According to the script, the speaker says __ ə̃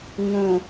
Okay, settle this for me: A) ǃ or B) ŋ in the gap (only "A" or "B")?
B